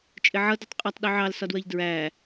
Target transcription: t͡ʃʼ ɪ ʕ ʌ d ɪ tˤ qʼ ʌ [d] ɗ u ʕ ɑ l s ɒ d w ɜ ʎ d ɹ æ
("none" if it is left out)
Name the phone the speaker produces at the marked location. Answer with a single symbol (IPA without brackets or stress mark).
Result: tˤ